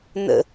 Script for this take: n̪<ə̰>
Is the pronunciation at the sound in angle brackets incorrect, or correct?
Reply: correct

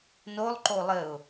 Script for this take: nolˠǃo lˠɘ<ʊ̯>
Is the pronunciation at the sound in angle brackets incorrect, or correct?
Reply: correct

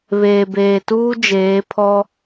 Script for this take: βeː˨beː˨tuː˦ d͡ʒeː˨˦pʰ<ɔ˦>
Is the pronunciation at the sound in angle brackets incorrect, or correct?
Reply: correct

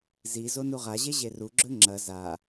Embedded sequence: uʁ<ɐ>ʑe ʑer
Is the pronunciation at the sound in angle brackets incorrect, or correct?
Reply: incorrect: a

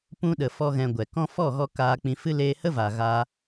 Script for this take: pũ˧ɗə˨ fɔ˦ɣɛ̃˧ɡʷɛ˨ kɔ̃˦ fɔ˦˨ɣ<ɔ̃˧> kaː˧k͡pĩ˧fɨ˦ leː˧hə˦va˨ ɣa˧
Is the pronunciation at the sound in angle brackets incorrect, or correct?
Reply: incorrect: ɔ˧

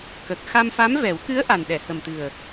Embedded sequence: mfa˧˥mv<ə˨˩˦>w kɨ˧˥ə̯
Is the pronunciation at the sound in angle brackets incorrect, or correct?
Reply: incorrect: ɛ˨˩˦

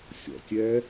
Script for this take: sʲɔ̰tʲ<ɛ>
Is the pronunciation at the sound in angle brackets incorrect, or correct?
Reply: correct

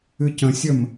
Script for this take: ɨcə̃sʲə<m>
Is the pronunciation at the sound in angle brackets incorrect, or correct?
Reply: correct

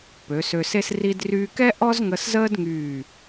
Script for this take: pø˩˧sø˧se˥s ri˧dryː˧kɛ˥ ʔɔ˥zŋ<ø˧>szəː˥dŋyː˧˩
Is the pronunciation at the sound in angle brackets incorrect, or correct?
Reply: incorrect: ə˧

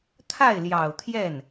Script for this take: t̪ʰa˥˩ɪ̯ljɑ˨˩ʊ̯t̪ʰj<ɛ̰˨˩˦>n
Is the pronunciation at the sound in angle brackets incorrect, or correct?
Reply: incorrect: ɛ˥˩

